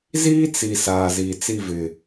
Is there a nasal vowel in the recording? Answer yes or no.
no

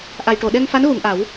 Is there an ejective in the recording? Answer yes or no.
no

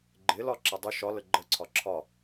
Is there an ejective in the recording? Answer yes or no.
no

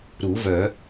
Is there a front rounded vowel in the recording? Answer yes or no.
yes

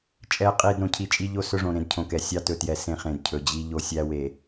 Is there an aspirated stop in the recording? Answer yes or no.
yes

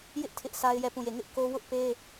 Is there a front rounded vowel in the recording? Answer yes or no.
no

